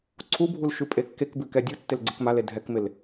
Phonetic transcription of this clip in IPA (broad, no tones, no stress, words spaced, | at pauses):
ǀʰubʱul ʃʉpʼekːekbʉ kɛdʲutːɪl ɡ͡ǀɪkmale dʱɛkmɪl